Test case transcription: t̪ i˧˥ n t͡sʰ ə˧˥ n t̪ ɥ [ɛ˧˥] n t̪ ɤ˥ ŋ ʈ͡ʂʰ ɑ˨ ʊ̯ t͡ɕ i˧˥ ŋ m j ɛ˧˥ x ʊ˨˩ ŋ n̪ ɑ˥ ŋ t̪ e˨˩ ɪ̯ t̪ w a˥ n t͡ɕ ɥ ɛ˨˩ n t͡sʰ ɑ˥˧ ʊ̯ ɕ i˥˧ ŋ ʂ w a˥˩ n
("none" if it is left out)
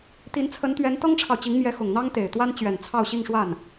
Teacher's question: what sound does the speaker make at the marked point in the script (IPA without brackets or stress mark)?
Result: ɛ˧˥